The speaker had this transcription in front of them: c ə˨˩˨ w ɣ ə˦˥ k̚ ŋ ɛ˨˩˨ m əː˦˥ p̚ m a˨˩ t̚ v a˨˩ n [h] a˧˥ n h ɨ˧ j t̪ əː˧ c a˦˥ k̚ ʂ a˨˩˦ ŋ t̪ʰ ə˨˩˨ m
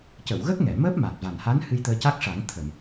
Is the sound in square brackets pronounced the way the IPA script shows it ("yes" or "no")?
yes